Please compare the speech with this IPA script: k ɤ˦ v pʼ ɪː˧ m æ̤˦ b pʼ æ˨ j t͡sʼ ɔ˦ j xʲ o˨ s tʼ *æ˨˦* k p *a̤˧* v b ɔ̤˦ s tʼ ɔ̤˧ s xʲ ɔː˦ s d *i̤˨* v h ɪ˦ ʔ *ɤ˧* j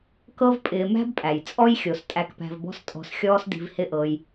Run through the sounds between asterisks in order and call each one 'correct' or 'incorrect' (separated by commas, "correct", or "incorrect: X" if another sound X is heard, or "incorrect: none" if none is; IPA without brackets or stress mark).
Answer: incorrect: æ˧, incorrect: æ̤˧, incorrect: i̤˧, correct